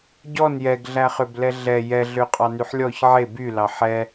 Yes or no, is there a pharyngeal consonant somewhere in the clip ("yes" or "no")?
yes